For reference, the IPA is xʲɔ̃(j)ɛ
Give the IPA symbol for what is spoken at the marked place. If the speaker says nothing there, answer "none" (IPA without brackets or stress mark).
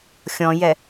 j